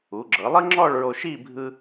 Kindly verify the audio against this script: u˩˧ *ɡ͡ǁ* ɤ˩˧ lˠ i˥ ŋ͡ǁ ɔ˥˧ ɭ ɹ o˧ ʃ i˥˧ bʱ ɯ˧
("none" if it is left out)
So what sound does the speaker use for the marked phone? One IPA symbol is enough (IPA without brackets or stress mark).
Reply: ɡ͡ǁ